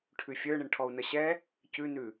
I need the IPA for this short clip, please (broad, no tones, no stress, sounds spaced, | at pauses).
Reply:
ʈʰ ʉ fʲ ə˞ ɳ ɪ ɳ ʈʰ ɔ u̯ n ə ɕ ɛ | c ʉ n ʉ